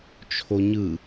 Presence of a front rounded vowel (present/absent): absent